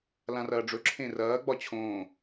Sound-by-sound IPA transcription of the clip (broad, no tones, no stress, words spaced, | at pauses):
lãrɐːɖ͡ʐɵ ǁʰẽrɐː ɡ͡bɒt͡ɕʰõː